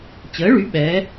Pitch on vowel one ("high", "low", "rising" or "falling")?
rising